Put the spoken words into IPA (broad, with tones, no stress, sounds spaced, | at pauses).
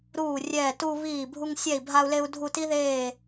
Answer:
ɾ uː˦˨ rʲ ɛː˦˨ t u˦ β iː˦˨ bʱ u˦ ŋ sʲ ɛ˦˨ i̯ bʱ a˦ u̯ l e˦ u̯ dʱ u˦˨ t i˦ ð eː˦˨